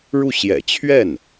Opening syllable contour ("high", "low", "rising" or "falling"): falling